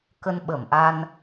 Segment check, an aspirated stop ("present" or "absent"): absent